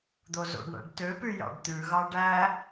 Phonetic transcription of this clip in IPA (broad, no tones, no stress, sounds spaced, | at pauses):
d̪ o z o̰ ɖ ɳ æ̰ ɖ t ø p y j ɑ̰ ɖ t̪ ʉ ɣ ɑ ɖ æ